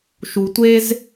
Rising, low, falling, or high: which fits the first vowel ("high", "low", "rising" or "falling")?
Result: low